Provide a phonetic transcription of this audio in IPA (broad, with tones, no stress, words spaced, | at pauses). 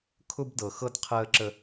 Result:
kʰʊ˦bdɤ˨xɤ˦d qʰəː˦ǁə˦